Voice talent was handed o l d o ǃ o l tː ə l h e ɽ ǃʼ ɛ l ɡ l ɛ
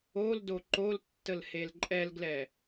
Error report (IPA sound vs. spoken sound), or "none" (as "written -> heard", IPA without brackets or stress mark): ɽ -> l